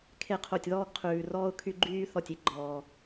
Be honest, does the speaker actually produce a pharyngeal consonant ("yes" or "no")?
no